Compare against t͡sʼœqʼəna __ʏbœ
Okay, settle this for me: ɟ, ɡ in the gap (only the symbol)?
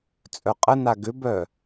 ɡ